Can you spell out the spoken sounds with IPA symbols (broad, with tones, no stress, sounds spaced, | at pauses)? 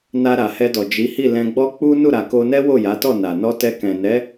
n a˧ ɾ a˨ h ɛ˧ d ɔ˨ d͡ʒ i˨˦ h i˦˨ l ɛ̃˧ ɡ͡b ɔ˦ k͡p u˦ n u˦˨ ɾ a˨ k o˧ n ɛ˦ w o˦˨ j a˨˦ t ɔ˦˨ n a˨ n ɔ˧ t ɛ˧ k ɛ̃˨ n ɛ˨˦